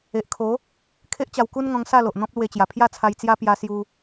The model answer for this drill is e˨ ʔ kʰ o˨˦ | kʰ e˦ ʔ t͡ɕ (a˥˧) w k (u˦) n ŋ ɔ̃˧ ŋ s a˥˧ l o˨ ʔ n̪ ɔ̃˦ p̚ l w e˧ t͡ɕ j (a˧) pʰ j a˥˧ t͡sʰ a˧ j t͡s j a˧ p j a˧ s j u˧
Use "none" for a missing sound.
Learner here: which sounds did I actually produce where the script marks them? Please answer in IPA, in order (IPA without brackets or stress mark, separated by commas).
a˧, u˦, a˨˩